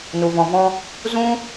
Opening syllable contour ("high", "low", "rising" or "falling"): low